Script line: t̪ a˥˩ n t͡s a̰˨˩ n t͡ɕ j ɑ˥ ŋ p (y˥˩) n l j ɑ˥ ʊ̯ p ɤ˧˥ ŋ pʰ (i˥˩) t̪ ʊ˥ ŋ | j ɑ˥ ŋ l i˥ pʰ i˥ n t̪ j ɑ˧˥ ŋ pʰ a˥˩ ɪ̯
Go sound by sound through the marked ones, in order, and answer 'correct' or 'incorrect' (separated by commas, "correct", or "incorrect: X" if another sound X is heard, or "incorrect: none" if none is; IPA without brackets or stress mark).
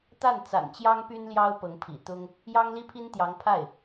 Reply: incorrect: y˥, incorrect: ḭ˨˩